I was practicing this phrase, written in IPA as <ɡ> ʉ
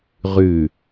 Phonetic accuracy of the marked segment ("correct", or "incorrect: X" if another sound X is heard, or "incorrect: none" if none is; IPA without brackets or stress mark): incorrect: ʁ